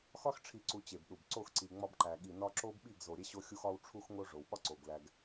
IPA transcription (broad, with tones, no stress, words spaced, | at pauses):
xɒ˦xʈ͡ʂʰi˨ǀu˨ t͡ɕe˨bɗu˨b ǀo˦˨xǀi˨ ŋ͡mɒ˦bǃæ˨ ɠi˨nɒ˦ ǁo˦bɓi˦˨ɡ zo˨ɾʲe˦ɕo˦xʲu˦x ɒ˦wʈ͡ʂʰu˦xŋo˦ ʐo˨wɓɒ˦ ǀo˨ɡlæ˦ɡ